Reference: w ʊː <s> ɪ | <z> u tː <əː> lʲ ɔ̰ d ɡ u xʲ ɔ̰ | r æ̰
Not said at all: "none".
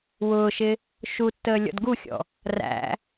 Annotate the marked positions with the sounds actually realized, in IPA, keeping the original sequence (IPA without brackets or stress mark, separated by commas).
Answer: ʃ, ʃ, əː